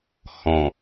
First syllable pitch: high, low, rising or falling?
low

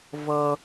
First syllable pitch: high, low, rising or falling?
low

